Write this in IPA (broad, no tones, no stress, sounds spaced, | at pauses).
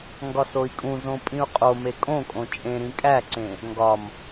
ŋ ɡ ɒ s o i̯ kʼ ũ z õ pʼ ĩ u̯ qʼ o m e kʼ õ kʼ õ t͡ʃʼ ẽ ɾ ĩ kʼ æ ǀ ẽ | ŋ ɡ ɒ m